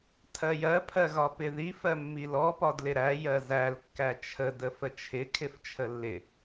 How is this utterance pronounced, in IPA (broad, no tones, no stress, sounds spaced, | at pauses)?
tʰ ɜ j ɜ pʰ ɜ ɣ ɒ p ɪ ð i f ɜ mː i l ɔ p ɒ d l ɪ ɾ æ j ɜ z æ l kː æ t͡ʃʰ ə d ə f ə t͡ʃʰ ɪ kʰ ɪ f t͡ʃʰ ə lː ɪ